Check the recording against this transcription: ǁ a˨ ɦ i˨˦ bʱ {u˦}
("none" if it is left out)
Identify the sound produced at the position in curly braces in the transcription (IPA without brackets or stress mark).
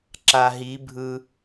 ɯ˦